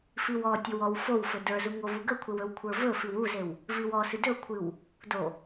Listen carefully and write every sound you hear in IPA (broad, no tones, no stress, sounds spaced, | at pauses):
f i w ɔ tʲ o w ɔ w f o w f ɵ d ə˞ z u ŋ o v u ɡ ə kʷʰ e w ɵ w kʷʰ ə˞ v ɵ f i w u z e w | v i w ɔ s ɨ d ɵ kʷʰ ɨ w | d o